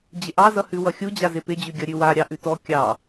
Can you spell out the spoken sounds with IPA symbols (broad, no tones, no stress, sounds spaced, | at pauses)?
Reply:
d͡ʑ ɪ ʔ ɑ z ʌ h ʉ w ʌ xʲ u d͡ʑ a z ɪ p ɪ d͡ʑ ʉ ɡʲ ʌ ɾʲ ʉ w a ɾʲ ɑ ʔ ʉ t ɔ kʲ ɑ